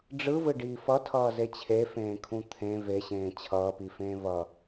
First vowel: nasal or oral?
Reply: oral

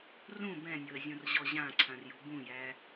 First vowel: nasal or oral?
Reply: nasal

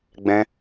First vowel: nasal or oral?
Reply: nasal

